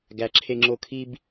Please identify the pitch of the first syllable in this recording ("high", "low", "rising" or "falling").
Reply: low